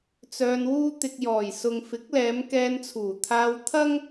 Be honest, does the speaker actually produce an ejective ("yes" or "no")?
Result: no